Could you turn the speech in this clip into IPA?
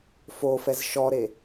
f o f ɛ z ʃ ɔ ɾ e

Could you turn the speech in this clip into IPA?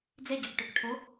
d͡z e ɟ ø k ʈ ø k ʈʰ o

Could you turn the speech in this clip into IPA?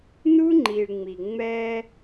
n u˦ ŋ͡ǃ i˨ ɭ ŋ͡m i˨ ŋ͡m ɛ˦

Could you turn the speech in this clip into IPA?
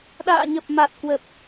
ɗ a̰ː˧˨ ɲ ə˨˩ p̚ m a˨˩ t̚ k w ə˨˩ p̚

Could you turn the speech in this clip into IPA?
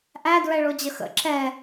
ʔ æ d ɹ ɛ ɭ o d͡ʑ ə x ə̰ ǁ ɛ

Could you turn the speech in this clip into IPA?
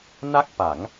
n a˥˩ k̚ p a˩˦ ŋ

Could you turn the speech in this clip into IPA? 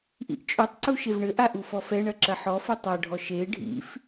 ʔ ḭ ʔ t͡ʃʼ o tˤ ǀ u ʃ e v ɳ ɘ ʔ a ʔ u f ɔ f ɛ ɳ ɐ ǁ ɐ ħ ɔ f ɘ tˤ a ɖʱ ɔ ʃ e ɖʱ ḭ f

